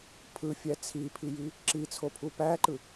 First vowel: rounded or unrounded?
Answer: unrounded